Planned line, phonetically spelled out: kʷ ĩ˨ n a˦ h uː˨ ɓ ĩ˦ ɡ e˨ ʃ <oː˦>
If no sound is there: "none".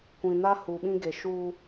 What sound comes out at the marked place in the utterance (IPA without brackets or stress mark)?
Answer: uː˦